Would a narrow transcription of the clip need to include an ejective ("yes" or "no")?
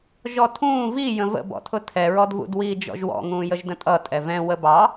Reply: yes